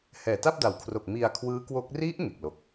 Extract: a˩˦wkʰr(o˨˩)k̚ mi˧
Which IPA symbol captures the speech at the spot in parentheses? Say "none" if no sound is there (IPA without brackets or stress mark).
o˨˩